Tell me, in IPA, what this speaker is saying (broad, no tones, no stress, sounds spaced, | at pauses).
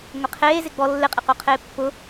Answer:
ŋʷ ɪ qʰ eː z ɪ ɡ͡b ɔ lː ɪ qʼ ɛ q o qʰ eː pː ʊ